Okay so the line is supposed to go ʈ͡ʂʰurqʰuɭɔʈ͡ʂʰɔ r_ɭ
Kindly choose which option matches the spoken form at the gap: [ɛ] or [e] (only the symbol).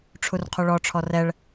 ɛ